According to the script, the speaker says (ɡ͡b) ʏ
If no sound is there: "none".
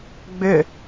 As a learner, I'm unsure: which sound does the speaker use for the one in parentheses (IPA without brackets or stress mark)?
ɡ͡b